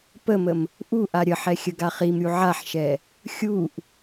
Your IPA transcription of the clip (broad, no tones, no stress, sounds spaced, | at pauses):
p ə m ə m | ʔ u ʔ a ɾʲ ə ħ ɛ xʲ ə ɡ a χ i m ɾʲ u ʕ a ħ ʃ ɛ | xʲ u ʔ